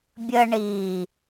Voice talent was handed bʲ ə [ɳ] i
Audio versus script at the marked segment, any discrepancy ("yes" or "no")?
no